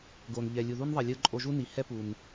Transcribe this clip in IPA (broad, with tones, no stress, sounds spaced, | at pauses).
ɡ o˨ n ʎ ɛ˨ lʲ u˨ ð u˦ n ðˤ ɛ˨ lʲ ɯ˧ ǃʼ o˧ ʒ u˦ n i˨ h ɛ˦ p u˨ n